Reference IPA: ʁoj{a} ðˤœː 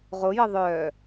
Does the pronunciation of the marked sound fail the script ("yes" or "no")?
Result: yes